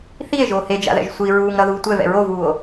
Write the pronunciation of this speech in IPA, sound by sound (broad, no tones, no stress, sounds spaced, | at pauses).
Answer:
θ i e̯ ʒ oː h e d͡ʒ a̰ ð ɛ̰ ʒ sʷ i ɹ uː ŋ ɾ ʌ ð uː tʷ ɛ v ɛ̰ ɹ o v uː o̯